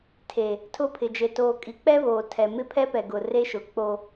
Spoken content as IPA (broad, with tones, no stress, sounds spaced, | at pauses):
tʰ e˨ | tʰ ʊ˦˨ pʰ ɪ˨ d͡ʒ e˨ t oː˨ kʼ i˨ k͡p ɛ˦ β oː˨ tʰ ɛ˨ m ɪ˦ pʰ ɛ˦ p ɛ˨ ɡ ʊ˨ r e˦ ʃ ʊ˨ k͡p o˦